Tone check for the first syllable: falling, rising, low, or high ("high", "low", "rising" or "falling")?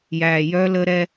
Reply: low